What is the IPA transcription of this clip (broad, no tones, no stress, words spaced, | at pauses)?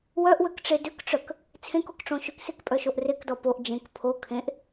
wœʔwøkʈ͡ʂe dʏkʈ͡ʂœk | t͡sʰẽkokʈ͡ʂõ ʃʏksekpʼœʃoʔ rekdɔ poʔ d͡ʒẽk pʰo kʰẽʔ